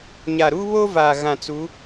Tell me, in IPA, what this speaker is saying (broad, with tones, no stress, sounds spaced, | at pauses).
ɲ a˨ ɾ uː˦ β o˦ v aː˨ ɣ ã˨ t͡s u˨˦